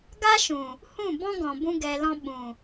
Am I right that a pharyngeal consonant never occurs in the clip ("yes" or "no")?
yes